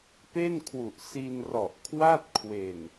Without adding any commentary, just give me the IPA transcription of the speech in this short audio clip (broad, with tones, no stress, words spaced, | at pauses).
pe˥˩nkʰwu˨˩ʔ si˧nrɔ˨˩ʔkʰwa˥˩t̚kʰwe˨˩n